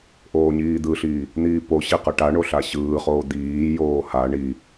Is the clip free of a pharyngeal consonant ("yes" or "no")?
yes